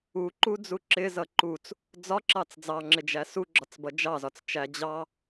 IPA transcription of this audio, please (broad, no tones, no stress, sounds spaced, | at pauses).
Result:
u ǃ u d͡z u ǁ ɪ z ʌ ǃ u t͡s | d͡z ɒ ǁ ɑ t͡s d͡z ɑ ŋ͡ǁ ɪ d͡ʒ æ s u ɡ͡ǁ ɒ t͡s b ʌ d͡ʒ ɑ z ɒ t͡s t͡ʃ æ d͡ʑ ɑ